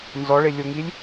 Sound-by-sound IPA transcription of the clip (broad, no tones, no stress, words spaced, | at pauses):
nzɔɭelʲoŋilʲ